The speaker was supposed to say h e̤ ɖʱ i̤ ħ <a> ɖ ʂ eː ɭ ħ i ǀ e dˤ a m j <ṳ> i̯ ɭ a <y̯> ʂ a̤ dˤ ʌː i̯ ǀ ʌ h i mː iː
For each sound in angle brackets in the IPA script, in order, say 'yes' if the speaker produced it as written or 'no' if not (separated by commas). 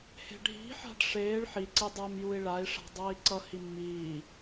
no, no, no